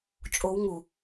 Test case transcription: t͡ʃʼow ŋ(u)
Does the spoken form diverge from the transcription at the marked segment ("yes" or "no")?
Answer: no